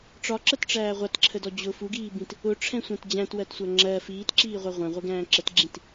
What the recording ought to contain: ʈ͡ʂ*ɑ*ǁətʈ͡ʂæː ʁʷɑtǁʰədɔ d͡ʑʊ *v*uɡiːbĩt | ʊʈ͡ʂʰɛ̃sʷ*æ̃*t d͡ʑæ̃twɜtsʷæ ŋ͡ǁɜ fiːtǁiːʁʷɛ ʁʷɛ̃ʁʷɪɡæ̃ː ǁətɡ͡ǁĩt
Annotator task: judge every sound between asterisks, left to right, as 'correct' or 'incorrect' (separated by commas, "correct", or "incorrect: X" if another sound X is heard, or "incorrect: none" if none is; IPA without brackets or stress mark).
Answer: incorrect: ɒ, incorrect: f, correct